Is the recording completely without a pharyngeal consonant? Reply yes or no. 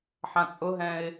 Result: no